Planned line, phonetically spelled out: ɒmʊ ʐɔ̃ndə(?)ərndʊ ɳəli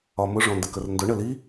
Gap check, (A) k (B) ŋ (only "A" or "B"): A